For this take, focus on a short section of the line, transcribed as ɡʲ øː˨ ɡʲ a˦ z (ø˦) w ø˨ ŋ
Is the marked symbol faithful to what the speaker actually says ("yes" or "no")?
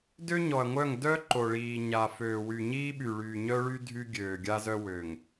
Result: no